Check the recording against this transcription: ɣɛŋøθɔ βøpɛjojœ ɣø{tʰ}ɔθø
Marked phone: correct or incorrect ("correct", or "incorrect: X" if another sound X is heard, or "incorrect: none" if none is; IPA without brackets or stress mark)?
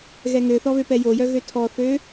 correct